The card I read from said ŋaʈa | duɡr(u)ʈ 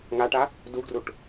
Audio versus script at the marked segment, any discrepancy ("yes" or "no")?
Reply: no